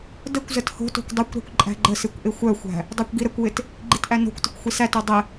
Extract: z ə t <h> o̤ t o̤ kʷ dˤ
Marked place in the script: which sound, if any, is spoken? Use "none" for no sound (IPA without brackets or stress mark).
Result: h